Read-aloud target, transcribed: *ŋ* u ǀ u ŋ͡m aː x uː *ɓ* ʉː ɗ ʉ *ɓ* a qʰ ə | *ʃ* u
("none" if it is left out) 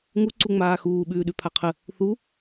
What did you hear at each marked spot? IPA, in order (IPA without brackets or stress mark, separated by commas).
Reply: ŋ, ɓ, pʰ, θ